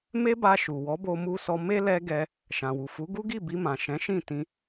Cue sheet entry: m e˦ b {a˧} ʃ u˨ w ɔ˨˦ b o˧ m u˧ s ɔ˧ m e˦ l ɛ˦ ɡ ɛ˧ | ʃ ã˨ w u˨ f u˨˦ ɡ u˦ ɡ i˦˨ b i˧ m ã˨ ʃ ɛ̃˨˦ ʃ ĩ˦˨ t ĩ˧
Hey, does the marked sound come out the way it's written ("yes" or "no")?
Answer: yes